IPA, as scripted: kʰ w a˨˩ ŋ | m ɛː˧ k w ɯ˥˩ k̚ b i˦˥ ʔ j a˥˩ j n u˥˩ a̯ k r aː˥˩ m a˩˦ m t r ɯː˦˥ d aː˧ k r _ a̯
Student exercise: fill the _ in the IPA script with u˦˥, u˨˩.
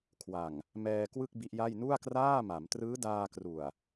u˨˩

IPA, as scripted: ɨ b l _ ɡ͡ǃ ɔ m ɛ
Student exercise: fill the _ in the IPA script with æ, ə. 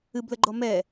ə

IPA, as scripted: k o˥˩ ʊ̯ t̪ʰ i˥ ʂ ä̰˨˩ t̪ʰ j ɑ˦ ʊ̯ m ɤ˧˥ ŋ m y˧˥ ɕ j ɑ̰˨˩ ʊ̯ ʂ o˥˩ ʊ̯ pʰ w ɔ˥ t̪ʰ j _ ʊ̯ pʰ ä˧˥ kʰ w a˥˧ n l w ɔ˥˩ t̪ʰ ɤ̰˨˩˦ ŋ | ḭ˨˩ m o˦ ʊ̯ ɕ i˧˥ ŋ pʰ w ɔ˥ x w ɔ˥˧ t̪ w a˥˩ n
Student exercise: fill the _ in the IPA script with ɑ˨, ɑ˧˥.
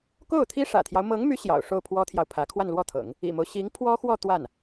ɑ˨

